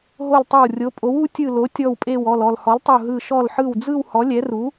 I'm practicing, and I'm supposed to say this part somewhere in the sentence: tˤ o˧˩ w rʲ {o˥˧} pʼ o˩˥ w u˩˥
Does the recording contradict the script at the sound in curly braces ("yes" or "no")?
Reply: yes